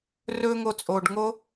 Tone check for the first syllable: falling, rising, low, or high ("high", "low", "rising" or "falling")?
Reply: high